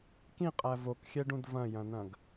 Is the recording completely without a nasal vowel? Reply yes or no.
no